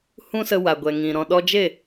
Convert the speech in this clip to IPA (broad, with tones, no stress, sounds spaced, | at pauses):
h ũ˦ s ə˧ w a˨ ɡʷ ɛ˨ ŋ ĩ˨ ɾ ɔ̃˨ ɗ ɔ˧ d͡ʒ e˦˨